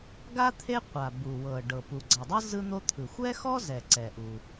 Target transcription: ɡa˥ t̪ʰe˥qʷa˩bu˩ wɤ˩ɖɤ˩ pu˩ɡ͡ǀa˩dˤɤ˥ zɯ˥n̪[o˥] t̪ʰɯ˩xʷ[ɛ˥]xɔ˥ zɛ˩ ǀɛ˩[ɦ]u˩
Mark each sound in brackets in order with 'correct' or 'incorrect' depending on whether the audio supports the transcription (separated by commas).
correct, correct, incorrect